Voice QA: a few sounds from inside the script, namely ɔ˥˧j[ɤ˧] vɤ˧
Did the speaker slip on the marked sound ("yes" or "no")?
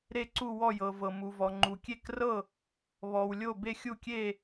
no